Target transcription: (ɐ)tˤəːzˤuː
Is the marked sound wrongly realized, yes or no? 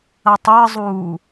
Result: no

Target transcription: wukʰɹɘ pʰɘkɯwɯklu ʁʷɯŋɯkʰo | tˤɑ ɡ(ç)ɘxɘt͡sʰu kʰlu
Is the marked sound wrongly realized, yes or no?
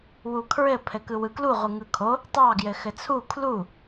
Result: yes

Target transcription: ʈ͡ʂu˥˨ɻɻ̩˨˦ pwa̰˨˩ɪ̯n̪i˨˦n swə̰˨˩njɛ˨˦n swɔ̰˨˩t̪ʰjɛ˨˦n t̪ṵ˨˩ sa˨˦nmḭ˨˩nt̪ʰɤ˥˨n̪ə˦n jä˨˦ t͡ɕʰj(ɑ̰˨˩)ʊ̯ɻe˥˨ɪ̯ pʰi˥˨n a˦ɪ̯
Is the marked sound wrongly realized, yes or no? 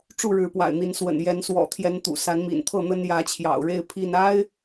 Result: no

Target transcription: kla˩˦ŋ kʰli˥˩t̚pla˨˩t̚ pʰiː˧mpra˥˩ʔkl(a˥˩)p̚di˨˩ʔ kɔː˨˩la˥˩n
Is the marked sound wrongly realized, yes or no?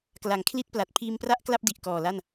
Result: no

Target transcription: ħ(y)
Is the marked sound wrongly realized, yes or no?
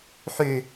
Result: no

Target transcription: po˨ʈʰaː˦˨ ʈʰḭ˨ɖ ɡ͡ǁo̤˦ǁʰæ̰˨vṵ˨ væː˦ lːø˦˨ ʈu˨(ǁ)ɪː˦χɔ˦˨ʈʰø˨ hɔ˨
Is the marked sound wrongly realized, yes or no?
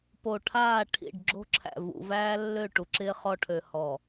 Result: no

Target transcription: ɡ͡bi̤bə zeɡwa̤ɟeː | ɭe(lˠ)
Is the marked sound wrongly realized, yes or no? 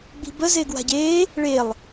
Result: no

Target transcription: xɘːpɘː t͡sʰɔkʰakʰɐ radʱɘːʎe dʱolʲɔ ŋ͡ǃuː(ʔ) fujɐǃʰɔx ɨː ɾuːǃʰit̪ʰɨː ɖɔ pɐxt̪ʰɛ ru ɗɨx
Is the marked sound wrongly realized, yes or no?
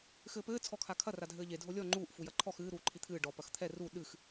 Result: no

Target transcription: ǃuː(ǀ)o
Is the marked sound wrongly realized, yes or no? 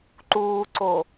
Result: no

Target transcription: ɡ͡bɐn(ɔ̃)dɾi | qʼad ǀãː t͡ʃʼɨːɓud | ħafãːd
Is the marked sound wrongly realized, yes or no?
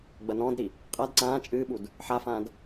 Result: yes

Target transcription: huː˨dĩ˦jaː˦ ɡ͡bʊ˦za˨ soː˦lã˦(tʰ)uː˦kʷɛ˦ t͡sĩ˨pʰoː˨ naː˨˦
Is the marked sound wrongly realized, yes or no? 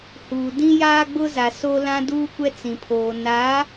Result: yes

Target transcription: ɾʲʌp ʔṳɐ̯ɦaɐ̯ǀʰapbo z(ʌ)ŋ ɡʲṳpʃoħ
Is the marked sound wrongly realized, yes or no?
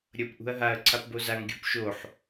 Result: yes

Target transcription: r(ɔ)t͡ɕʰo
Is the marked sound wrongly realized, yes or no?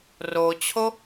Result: yes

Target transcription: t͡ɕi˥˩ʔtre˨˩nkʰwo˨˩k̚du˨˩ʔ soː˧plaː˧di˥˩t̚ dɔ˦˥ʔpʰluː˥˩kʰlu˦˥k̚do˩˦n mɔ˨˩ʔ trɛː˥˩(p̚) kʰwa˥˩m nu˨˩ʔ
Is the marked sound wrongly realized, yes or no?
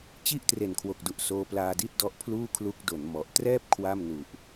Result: no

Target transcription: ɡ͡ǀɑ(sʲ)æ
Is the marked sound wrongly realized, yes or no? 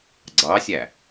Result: no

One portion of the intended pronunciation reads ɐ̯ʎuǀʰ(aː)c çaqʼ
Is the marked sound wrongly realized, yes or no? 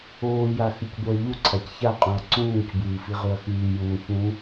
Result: yes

